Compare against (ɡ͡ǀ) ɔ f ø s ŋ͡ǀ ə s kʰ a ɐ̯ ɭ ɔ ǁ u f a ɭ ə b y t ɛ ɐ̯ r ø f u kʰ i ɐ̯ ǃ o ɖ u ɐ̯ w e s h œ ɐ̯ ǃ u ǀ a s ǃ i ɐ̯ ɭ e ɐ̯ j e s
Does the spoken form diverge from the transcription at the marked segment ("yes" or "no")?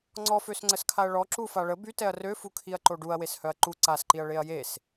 yes